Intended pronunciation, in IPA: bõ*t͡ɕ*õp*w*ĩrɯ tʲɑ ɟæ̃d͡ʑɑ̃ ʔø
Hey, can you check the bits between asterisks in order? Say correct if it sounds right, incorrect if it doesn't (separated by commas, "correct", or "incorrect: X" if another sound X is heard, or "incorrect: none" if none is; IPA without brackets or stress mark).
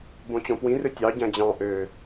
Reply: correct, correct